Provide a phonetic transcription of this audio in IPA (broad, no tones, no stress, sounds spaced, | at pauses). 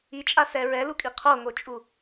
i t͡ʃʼ a s ɛ ɹ ɛ l u kʼ i qʰ o ŋ o t͡ʃʼ u